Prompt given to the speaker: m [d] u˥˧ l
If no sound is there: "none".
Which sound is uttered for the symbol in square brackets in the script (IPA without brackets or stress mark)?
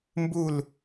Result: b